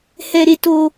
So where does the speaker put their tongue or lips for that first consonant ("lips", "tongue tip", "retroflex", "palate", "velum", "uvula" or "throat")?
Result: throat